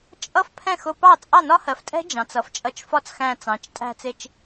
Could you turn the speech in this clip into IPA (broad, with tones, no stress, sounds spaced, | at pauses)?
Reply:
t͡ʃʼ ʌ˦˥ f pʰ ɛ̃˥˩ x ʊ˧ p ɑ˥˩ t͡sʼ ɑ˥˩ n ɒ˦˥ h ɜ˩˧ f tʼ ɛ̤˦˥ d͡ʒ ɑ̃˩˧ t͡s ʌ˩˧ f t͡ʃʼ ʌ˧ t͡ʃ f ɒ˦˥ t͡s x æ̃˧ t͡s ɑ̃˩˧ t͡ʃ tʼ æ̤˧ t͡s ɪ˧ t͡ʃ